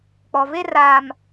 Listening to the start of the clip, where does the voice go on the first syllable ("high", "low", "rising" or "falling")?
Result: low